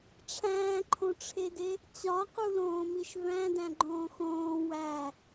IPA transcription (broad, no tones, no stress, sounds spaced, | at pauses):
ʈ͡ʂʰ æ̃ː ǃʰ õ ʈ͡ʂʰ e d e | t͡ɕ ɒ q u l õː m i ʃ v æ̃ d æ̃ ɡ͡ǃ õː x õː w æ